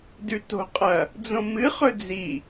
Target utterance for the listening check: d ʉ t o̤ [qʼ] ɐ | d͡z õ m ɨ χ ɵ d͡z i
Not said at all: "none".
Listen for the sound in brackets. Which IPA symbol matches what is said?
qʼ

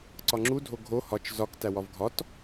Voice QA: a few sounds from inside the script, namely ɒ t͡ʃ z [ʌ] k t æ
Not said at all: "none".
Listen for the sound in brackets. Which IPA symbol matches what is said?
ɒ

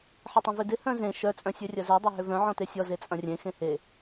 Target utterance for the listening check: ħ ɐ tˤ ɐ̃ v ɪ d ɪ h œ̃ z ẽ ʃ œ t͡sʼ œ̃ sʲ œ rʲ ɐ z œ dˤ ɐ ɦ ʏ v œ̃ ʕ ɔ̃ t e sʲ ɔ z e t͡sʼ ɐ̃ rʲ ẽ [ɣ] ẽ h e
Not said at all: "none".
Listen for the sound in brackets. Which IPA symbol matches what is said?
x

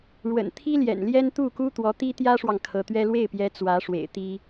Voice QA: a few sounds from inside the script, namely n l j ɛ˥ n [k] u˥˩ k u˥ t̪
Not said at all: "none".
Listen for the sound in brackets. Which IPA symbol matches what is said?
t̪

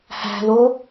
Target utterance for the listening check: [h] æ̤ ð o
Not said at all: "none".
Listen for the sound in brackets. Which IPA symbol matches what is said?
h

